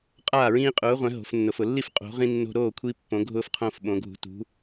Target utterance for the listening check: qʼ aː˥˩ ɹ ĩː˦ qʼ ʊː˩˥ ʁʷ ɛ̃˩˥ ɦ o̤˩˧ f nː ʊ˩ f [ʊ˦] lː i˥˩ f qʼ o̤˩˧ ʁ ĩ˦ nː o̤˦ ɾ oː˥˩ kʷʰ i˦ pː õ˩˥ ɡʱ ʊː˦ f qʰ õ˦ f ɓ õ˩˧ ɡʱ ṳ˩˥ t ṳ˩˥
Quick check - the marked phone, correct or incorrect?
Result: incorrect